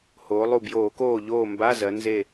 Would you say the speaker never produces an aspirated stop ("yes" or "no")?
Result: yes